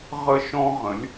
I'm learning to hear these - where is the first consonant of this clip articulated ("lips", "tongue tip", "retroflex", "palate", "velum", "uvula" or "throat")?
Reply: uvula